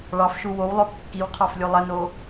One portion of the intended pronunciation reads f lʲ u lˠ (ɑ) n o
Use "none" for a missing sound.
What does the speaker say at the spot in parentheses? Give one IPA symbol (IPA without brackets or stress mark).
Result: ə